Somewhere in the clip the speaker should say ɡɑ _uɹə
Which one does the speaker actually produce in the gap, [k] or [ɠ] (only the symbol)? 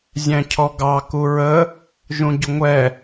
k